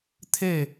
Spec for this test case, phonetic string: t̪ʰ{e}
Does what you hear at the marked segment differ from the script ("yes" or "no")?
no